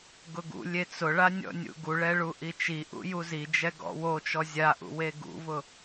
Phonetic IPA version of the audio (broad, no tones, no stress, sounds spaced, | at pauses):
ɡ ʊ ɡ ṵ lʲ e t͡s ʊ ɭ a nʲ ɔ̰ nʲ ṵ ɡ u ɭ ɛ ɭ u ʔ i t͡ʃ i ʔ ṵ j u z i d͡ʒ ɛ ɡ ɔ̰ w o t͡ʃ ɔ zʲ a ʔ ṵ w e ɡ ṵ v ʊ